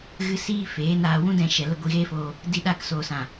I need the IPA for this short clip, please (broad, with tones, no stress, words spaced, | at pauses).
ɣɨ˧ siː˦feː˨˦ naː˧ wũ˦dɛ̃˧ʃɛ˨ lə˦ ɡʷi˧ɣeː˦foː˧ | di˧ɗaː˧ksoː˨sã˨